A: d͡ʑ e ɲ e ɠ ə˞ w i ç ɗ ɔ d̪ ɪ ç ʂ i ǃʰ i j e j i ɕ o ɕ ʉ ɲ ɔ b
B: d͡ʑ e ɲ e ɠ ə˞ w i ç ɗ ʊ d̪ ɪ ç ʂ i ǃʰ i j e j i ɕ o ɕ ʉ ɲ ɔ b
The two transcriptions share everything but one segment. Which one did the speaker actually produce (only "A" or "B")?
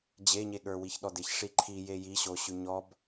A